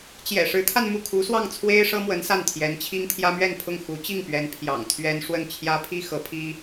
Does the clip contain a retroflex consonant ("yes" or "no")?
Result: yes